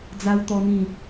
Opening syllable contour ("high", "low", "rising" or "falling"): high